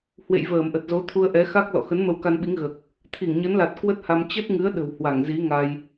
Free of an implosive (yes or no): no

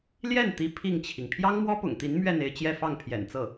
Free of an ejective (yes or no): yes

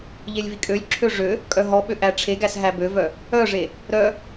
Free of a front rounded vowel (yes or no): no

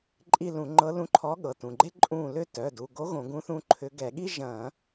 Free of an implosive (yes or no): no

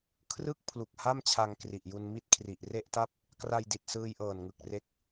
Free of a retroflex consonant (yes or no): yes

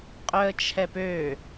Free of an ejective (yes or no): no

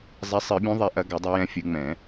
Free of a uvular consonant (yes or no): yes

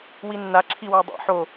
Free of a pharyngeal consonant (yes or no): no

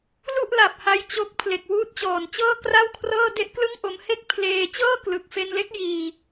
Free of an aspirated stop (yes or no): no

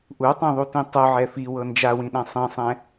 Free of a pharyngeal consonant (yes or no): no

